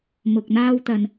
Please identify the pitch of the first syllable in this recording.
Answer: low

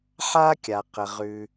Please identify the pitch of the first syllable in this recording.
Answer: high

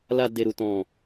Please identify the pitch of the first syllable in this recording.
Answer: low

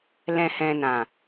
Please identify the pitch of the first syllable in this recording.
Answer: low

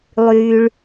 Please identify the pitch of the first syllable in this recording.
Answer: low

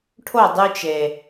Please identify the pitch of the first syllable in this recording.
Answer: falling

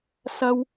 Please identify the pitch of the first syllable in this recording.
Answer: high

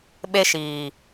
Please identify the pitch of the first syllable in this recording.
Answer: high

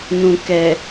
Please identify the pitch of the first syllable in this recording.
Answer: low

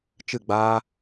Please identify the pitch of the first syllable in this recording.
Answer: falling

